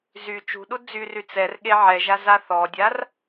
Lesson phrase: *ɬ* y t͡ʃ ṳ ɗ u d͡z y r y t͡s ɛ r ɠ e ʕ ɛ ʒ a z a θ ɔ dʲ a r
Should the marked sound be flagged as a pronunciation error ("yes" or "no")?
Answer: yes